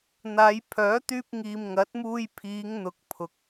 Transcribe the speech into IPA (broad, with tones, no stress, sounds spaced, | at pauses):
n̪ aː˨˧ j pʰ œː˨˥ t̪ yː˧ p̚ ŋ iː˨ m ŋ ɐ˨˥ t̚ m uː˧ j pʰ iː˨˧ ŋ n̪ ʊ˨ k̚ pʰ ʊ˨ k̚